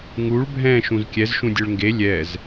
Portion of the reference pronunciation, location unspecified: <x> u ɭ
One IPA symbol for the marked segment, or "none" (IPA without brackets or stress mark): ŋ